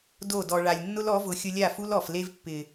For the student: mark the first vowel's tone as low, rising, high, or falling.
falling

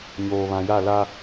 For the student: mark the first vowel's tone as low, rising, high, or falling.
low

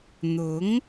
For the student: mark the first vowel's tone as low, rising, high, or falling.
rising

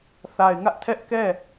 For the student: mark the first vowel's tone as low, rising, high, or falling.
low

